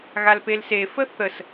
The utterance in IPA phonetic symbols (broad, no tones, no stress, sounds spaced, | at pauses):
ɣ a l p e l s e f ə θ ə s